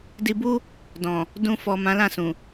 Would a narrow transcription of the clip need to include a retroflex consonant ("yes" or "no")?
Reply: no